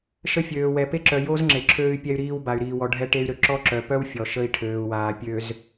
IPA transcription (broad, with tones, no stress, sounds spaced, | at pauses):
ʃ ə˦ fʲ øː˨ w ɛ˨ p e˦ ǁ œ˨ j o˦ z ŋ͡ǁ e˨ ǁʰ øː˦ y̯ pʲ ɛ˦ y̯ ɾ iː˦ w b a˨ y̯ ɾ iː˨ w ɔ˨ ɖʱ ɛ˦ ʈ e˦ y̯ ɾ ø˨ ǁ ɔ˦ ǁ œ˨ p œ˦ w fʲ ɔ˨ ʃ ə˦ i̯ ʈʰ øː˨ u̯ w aː˨ pʲ ø˨ z